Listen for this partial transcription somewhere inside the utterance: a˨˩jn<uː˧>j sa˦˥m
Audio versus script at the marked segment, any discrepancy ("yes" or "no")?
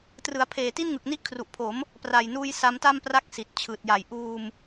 no